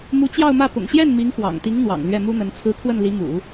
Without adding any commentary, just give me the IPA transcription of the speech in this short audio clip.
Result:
m u˧˥ t͡ɕ j ɑ˥˧ ʊ̯ m ä˥˩ p ʊ̰˨˩ ŋ ɕ j ɛ˥˩ n m i˧˥ ŋ x w ɑ̰˨˩ ŋ t̪ i˧˥ ŋ n̪ w ɑ̰˨˩ ŋ l ɥ ɛ˥˩ m u˥ n̪ ə˧˥ n t͡sʰ ɹ̩˧˥ kʰ w ə˥˩ n l i˧˥ m ṵ˨˩˦

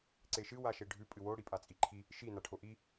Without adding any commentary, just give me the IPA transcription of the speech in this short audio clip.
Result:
ǀ e ʃ ɨ w a ʃ e ɖʱ ʉ pʼ ɨ w o ɽ i pʼ a t͡sʼ i ǃʰ i | ʃ i n a ʈʰ o ʔ i

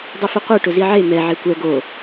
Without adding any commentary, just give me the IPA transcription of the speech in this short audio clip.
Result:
dˤ ʊ f ʊ qʷ ɛ ʈ ʊ z i ʕ e n̪ ɛ ʕ e kʷ ɛ ɡ o

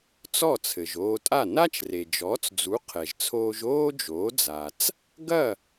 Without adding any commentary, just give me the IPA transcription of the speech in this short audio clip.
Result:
t͡s ɔ˥˩ t͡sʰ ɘ˩ ʒ oː˧ tʼ a˥˩ n a˥ t͡ʃ r e˩ d͡ʒ ɔː˩˥ t͡s d͡z u˩˥ qʰ ɛ˩ ʒ t͡sʰ oː˧ ʒ oː˥ d͡ʒ oː˩˥ d͡z a˩ t͡s | ɡ ɐ˥˩

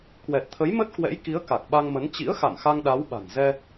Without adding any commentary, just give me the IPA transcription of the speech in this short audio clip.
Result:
k w ɛ˨˩ t̚ t̪ʰ ə˨˦ j m ə˦˥ t̚ k w ɛ̰˧˥ j k i˨˦ ə̯ k a˨˩ k̚ ɓ a˧ ŋ m ə˨˦ n t͡ɕ ḭ˧˥ ə̯ x a̰˧˨ m x a˧ ŋ ɗ a˨˦ w ɓ a̤˨˩ n z ɛ˧

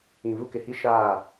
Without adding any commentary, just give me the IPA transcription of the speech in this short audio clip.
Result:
ĩ˨ v u˦ k ɪ˨ h i˦ ʃ aː˦˨

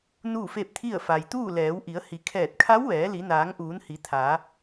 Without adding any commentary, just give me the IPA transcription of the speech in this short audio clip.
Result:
n uː˥˨ f e˥˨ p̚ t̪ʰ i˥˨ ə̯ f a˩ j t̪ uː˥˨ l ɛː˩˧ w ʔ i˩˧ ə̯ h i˩˧ kʰ ɛː˧˩ t̚ kʰ a˧˥ w ʋ ɛː˩˧ l i˩˧ n aː˩˧ ŋ ʔ uː˩˧ n h i˩˧ t̪ʰ aː˩˧

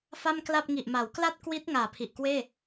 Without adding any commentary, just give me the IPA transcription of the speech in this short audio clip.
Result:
f a˥˩ m k l a˥˩ p̚ ŋ i˨˩ ʔ m a˩˦ w k l a˥˩ t̚ k w i˦˥ t̚ ŋ aː˨˩ pʰ i˨˩ ʔ k w eː˥˩

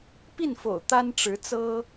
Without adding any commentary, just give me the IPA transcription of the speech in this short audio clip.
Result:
p i˥˩ n f o̰˨˩ ʊ̯ t̪ a˥ n ʈ͡ʂ ɻ̩˧˥ t͡s ɤ˥

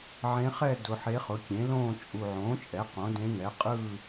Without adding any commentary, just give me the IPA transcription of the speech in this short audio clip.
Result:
ʕ ẽ˧˥ χ ɛ˥˧ d ʊ˨ ħ e˧˥ χ ʊ˩˥ kʲ ẽ˩˥ l õː˥˧ t͡ʃʼ u˨ ʕ õː˩˥ t͡ʃʼ ɛ˩˥ q õ˩˥ d ẽ˧˥ ŋ ɛ˩˥ qʼ ɯː˥˧

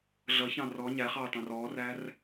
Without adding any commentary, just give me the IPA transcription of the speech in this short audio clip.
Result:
ɮ ʌ ç ɑ̃ r ɔ ɲ æ χ ɑː t ɑ̃ r ɔː r æ r

